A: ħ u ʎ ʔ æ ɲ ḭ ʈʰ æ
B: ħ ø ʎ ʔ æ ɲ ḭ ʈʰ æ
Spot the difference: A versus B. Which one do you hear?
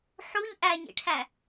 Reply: A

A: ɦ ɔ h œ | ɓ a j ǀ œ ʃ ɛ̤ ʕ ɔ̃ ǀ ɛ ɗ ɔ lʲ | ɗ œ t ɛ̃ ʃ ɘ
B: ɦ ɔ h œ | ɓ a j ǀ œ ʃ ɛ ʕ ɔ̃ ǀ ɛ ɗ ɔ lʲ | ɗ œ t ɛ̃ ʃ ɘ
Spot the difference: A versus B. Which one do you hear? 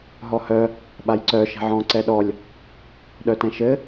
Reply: A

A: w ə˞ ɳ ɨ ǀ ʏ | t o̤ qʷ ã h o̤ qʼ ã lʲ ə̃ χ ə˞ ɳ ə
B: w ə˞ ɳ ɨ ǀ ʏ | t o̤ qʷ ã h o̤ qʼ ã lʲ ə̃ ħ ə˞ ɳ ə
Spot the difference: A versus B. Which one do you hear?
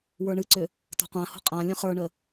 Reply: A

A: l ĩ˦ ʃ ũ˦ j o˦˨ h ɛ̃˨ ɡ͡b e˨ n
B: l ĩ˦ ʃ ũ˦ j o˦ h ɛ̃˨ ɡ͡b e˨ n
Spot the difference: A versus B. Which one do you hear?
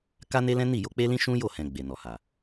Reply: A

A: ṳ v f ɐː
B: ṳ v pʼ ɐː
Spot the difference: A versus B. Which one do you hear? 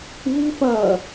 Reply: A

